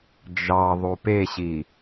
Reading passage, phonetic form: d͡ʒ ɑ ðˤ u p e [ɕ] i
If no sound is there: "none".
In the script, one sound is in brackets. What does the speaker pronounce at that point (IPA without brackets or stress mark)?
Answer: ɕ